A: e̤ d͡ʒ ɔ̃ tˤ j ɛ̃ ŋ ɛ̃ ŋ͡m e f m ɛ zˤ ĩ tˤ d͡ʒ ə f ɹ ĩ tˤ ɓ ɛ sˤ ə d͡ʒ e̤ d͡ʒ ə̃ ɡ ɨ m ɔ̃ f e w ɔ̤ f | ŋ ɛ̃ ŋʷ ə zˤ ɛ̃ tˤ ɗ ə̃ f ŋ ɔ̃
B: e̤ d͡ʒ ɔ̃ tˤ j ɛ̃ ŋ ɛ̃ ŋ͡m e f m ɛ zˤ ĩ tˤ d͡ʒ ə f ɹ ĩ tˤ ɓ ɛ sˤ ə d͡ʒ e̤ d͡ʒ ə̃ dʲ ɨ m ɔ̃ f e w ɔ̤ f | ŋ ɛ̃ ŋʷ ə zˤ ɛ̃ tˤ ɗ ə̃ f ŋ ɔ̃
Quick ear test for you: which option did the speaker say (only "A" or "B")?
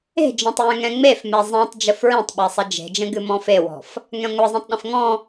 A